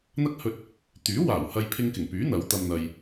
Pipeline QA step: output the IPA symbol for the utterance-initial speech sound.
n̪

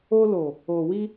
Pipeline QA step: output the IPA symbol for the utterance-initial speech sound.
o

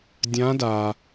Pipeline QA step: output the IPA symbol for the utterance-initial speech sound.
dʲ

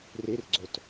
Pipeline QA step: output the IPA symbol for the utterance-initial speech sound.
r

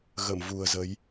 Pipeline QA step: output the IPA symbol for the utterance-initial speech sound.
ɣ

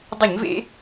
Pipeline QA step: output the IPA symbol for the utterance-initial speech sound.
dˤ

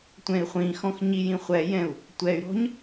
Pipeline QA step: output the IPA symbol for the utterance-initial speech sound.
tʷ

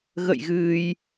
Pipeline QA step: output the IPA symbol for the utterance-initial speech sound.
ɣ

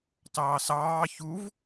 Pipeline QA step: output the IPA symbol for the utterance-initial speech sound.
t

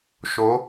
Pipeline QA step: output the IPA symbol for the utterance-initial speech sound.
ʃ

